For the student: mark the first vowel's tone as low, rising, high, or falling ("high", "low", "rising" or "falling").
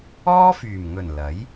high